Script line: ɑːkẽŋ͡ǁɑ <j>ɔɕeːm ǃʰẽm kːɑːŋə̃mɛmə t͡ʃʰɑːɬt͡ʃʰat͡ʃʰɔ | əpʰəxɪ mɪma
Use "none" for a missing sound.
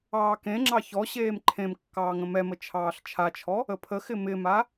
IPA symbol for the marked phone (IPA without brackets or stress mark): ç